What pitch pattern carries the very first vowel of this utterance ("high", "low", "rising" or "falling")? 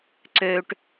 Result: low